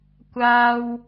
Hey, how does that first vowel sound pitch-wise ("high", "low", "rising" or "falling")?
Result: high